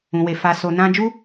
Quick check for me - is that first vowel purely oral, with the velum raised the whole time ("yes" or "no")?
no